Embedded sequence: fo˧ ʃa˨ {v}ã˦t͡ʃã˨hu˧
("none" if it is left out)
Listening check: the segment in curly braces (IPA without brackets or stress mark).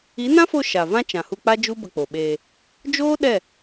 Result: v